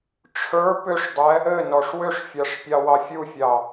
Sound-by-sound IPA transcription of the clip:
ʈ͡ʂʰ ə˞ p ʏ ʂ dˤ ɛ | ɘ n ɔ ʂ w ʏ ʂ fʲ a ʂ pʲ ɑ w ɑ fʲ u fʲ ɑ

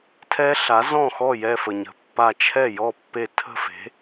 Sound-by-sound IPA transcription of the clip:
tʰ ɛ˦˥ ɬ a˩˥ z ɔ̃˥˩ x ɔ˥˩ j ɛ˥˧ f ə˩ ɲ ə̤˩˥ pː a˧˩ t͡ʃʰ ɛ˥˩ j ɔ˥˩ pː e˥˧ tʰ ə̤˥˧ f e̤˩˥

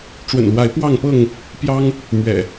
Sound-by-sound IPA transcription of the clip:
ʈ͡ʂ w ə̰˨˩ n l w a˨˦ ɪ̯ p w ɑ˥˨ ŋ p ɤ˥˨ ŋ | p j ɑ˦ ŋ | m ɥ ɛ̰˨˩

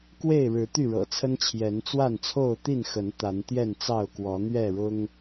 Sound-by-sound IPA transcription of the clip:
k w e˥˨ ɪ̯ ɻ ɻ̩˨˦ t̪ y˥˨ ɻ ɤ̰˨˩ t͡sʰ ə˦ n t͡ɕʰ j ɛ˨˦ n t͡s w a˥˨ n t͡sʰ o˥˨ ʊ̯ t̪ i˥˨ n x ə˨˦ n t̪ a˨˦ n t̪ j ɛ˥˨ n t͡s ɑ˥˨ ʊ̯ k w ɔ˨˦ n̪ ɥ ɛ˥˨ ɻ ʊ˦ ŋ

